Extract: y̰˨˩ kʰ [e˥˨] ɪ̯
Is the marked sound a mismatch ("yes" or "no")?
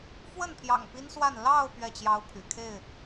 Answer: no